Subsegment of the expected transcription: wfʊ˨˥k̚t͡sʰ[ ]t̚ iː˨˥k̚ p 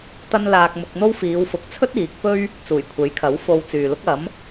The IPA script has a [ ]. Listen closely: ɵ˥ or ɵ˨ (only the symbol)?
ɵ˥